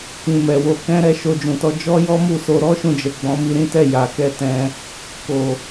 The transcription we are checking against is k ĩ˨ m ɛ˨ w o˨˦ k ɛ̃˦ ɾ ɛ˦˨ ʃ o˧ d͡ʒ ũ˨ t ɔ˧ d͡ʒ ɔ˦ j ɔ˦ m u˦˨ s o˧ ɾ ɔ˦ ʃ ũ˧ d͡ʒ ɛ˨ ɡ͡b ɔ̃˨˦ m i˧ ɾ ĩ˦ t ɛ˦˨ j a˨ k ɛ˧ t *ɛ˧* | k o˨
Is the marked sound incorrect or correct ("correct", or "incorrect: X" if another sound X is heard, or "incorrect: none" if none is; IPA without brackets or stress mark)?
incorrect: ɛ̃˧